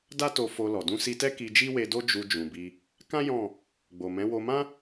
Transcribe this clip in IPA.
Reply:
d a˦ t o˧ f o˧ l ɔ˨ d ũ˧ s i˧ t ɛ˦ k i˧ d͡ʒ i˦ w e˧ d o˦ d͡ʒ u˧ d͡ʒ ũ˨ b i˧ | k ã˦ j ɔ̃˦˨ | ɡ͡b o˨ m ɛ̃˨˦ w o˧ m ã˦

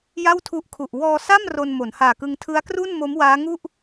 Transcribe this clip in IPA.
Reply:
j a˥˩ w tʰ u˦˥ ʔ kʰ u˨˩ ʔ w ɔː˧ s a˥˩ m r o˧ n m o˩˦ n h aː˨˩ k ɯ˧ ŋ tʰ ɯ˦˥ a̯ k r u˥˩ n m o˦˥ m w aː˦˥ ŋ u˥˩ ʔ

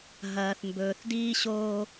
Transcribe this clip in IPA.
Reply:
ɦ ɐː˨ θ m b ɵː˨ θ d iː˦ ɕ oː˦

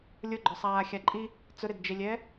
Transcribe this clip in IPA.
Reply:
lʲ ʊ ɡ͡ǃ ɔ sˤ aː xʲ a ǃʼ i | t͡s ʊ ɾ e d d͡ʒ e lʲ ɛː

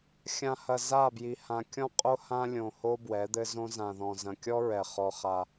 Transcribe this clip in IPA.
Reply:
xʲ ã˨ h ɐ˨ z a˦˨ b j i˨ h ã˨ kʲ ɔ̃˦ qʼ o˦ h ã˦ lʲ õ˨ h o˦ b w ɛ˨˦ d̪ ɘ˦ z õ˦ z ã˨ ð ɔ̃˨ z ɐ̃˨ kʲ ɔ˦ ɹ ɛ˨ χ ɔ˦ χ a˦

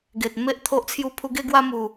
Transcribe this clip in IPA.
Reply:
ɡ e˨ t̚ m e˦ ʔ t̪ʰ o˦ ʔ t͡sʰ j u˦ pʰ u˧ ɡ e˦ ɡ w a˦ m u˨˩

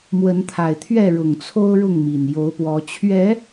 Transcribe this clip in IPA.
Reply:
m w ə˨˦ n t̪ʰ a˨˩ ɪ̯ t̪ʰ ɥ ɛ˥˨ ɻ ʊ˨˩ ŋ t͡sʰ o˦ ʊ̯ ɻ ʊ˥˨ ŋ m i˨˩ n j o˨˦ ʊ̯ p w ɔ˨˦ t͡ɕʰ ɥ ɛ˨˦

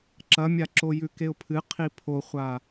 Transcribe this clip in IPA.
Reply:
ǁ ɐ mʲ a ǁ o j ʉ k e ʊ̯ pʰ ɨ qʰ i pʰ o χʷ a

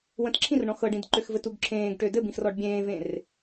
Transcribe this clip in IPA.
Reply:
w ə̃ t ǁʰ ĩ r ɳ ɔ̃ x ɤ ɖ ĩ d ǃ ø x v ɘ t u ɡ ǁʰ ẽː ɡ ʈ ø d ɘ b ĩ x r ɔ ɖ bʲ ẽː v ẽ r

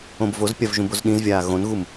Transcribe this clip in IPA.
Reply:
õ b v o z pʲ a v ʒ ũ b o z ɗ ĩ z vʲ aː ɣ õ n ɣ u m

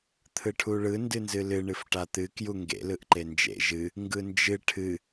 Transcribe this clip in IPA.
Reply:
t̪ʰ ɯ ʈʰ u ɭ ɯ n d ɨ n z ɨ l ɨ ɳ ɨ f ʈ a t̪ ɨ k j u ŋ ɡ ḛ l ɯ ʔ ǃ e n d͡ʒ ḛ ʒ ɨ | ŋ ɡ ɯ n d͡ʒ ɨ ʈʰ ɨ

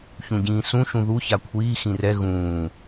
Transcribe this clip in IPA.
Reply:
ç ũ ɟ ĩː s ũ ʃ ũ ð u ç a kʷʰ iː x ĩ r ɛ ɣ ũː

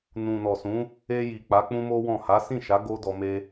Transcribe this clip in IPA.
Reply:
n ũ˨ n ɔ˨ s ũ˨˦ | e˧ j i˨ k͡p a˨˦ k͡p ũ˦ m o˦ w ɔ̃˦˨ h a˨˦ s ĩ˦˨ ʃ a˨˦ ɡ o˦ d ɔ˧ m e˧

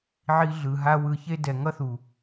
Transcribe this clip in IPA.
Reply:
ʕ i˧ ɮ ɯ˨ ɦ a˧ w ɯ˨ ç e˧ d ɛ˨ ŋ ʌ˦ θ u˨

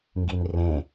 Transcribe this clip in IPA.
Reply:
ŋ ɡ i n r ẽ

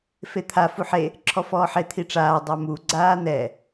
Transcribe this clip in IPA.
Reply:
f e t̪ʰ a f u ħ e | ǁʰ ɔ f ɔː ħ e t̪ʰ i ʈ͡ʂ aː dˤ a m u ɡ͡ǀ aː n̪ ɛ

